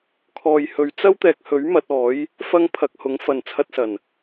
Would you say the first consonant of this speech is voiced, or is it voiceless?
voiceless